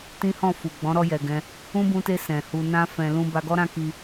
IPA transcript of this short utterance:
t ĩ˦ h ɔ̃˦˨ f u˨ ɡ͡b ɔ̃˨˦ ɾ ɔ˧ j ɛ˨ ɡ ɛ̃˧ | ũ˦ b ũ˧ t e˧ s ɛ̃˨ h u˧ n ã˧ f ɛ̃˧ l ũ˦ b a˧ ɡ ɔ˦ ɾ ã˦ k i˧

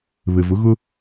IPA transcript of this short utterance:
β ɘ˩ v ʊ˩˧ ɣ ʊ˧

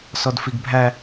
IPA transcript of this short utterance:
s ɔ d f i ɡ bʱ æ

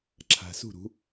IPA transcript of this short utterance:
ǁʰ a̤˨ s ṳ˦˨ ɾ ṳ˨˦

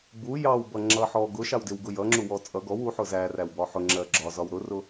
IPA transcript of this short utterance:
b u j ɑ w b ʌ ŋ͡ǁ ʌ ħ ɔ ɡ ʊ ʃ ɑ w d ɪ w ɡ ʊ j ʌ ŋ͡ǁ u w ɔ t͡sʼ ʌ ɡ ɔ w u ħ ʊ z æ r æ w b ɒ ħ ʊ ŋ͡ǁ ɜ ɡ͡ǁ ɒ z ɒ w ɾ ʊ r ʊ

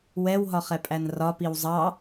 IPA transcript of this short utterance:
w ɛ w ɦ ɒ χ ɛ pʼ æ n r ɒ p i w zˤ ɑ

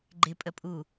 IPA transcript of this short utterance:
ɡ͡ǃ ɪ pʼ ə pʼ u

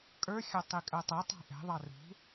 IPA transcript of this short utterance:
kʼ ə˞ xʲ ɑ tˤ i kʼ ɜ tˤ ɛ tˤ ɑ̤ ʔ ɛ̤ ðˤ ɑ r ṳ

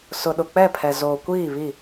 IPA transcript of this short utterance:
s ʊ˨ ɗ ʊ˨ k͡p ɛ˦˨ pʰ ɛ˨ z oː˨ kʷ iː˦˨ β i˦˨

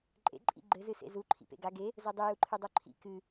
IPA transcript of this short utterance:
ǃʼ ḛ ǃʼ ḭ ɡ͡ǃ ɘ z ɨ s ḛ z u ǃʰ ḭ p ḛ ɡ a ɡ e | z o dˤ ɨ j u ǃʰ ɨ dˤ o ǃʰ ḭ k ɨ

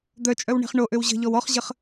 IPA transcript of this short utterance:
d̪ œ t͡ʃʼ œ w ɳ e̤ χ ɳ o ʔ ø w ʑ ə̤ ʎ ɔ w ɔ χ ʑ ə χ

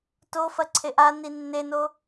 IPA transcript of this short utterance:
t o f ɐ ǀʰ e ʔ a n i nː e n o

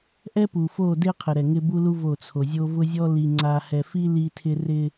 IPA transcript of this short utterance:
ʔ ɛ˦ p u˨ f o˦˨ d e˦ qʰ ɪ˨ ɾ ɛ˨ ŋ ɪ˦ b u˦ l u˦ v o˦˨ t͡sʰ o˨ zʲ o˦ v ʊ˦ zʲ ɔ˦ l i˨ ŋ͡ǀ a˨ h ɛ˨ f i˦ l i˦ tʰ ɪ˦ r ɪ˦

